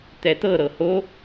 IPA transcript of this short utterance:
t̪ɛt̪ɤɾɤ ho

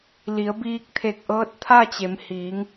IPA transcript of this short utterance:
li˩˧ə̯biː˧k̚t̪ʰe˧˩k̚ ʔɤː˧˥t̚t̪ʰa˥˨ t͡ɕe˩˧mhiː˩˧ŋ

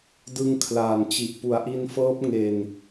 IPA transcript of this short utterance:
dɯ˧ŋkʰlaː˨˩nt͡ɕi˨˩ʔ pu˩˦a̯ʔi˧nfɤː˦˥p̚ ŋe˧n

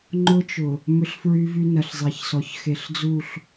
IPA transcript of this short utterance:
ŋ͡ǃʊ˦t͡ʃʊ˨ | mʏ˦ɬfɹy˦vy˦nɐ˨ɬ zˤe˨çsɔ˨ç xe˨ɬd͡zu˦˨ɬ

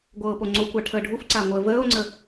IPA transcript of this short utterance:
ɡʷɤːpoŋ͡ǀokʷa ʈʰəːɖʱufǀa ŋʷəːvəːo̯ŋ͡ǀə

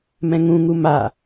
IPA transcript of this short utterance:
mɛ̃ŋũ ŋuma

